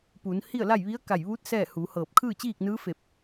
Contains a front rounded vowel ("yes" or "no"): no